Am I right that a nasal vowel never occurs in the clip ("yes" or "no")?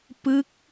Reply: yes